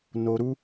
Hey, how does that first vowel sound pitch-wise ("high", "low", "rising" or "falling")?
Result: low